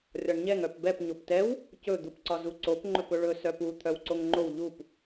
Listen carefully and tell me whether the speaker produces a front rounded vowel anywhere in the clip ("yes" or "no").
yes